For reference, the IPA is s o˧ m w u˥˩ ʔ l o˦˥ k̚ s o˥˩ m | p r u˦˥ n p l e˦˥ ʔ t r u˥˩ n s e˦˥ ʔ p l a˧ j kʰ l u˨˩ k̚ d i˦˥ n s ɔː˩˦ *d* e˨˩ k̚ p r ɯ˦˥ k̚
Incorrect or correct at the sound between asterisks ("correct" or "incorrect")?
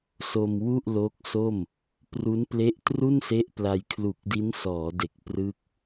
correct